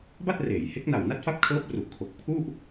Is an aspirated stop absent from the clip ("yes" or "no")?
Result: no